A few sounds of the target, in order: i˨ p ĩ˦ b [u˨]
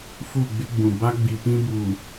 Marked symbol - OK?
yes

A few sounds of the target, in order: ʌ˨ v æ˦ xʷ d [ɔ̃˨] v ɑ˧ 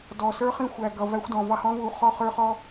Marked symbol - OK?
yes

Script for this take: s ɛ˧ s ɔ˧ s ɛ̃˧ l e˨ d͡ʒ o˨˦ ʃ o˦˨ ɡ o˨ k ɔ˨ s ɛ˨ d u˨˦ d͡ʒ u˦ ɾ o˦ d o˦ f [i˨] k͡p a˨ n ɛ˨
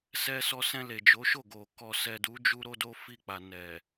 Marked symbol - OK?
no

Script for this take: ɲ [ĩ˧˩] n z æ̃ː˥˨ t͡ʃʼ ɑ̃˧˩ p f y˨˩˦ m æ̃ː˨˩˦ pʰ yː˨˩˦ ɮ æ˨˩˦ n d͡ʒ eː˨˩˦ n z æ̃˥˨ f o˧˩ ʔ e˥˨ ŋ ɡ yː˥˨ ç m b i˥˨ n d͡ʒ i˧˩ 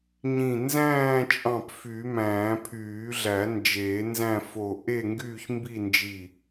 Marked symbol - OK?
yes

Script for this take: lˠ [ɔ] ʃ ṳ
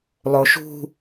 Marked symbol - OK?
no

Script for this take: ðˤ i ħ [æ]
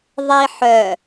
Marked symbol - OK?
no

